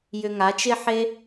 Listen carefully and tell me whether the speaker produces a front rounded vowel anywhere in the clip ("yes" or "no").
yes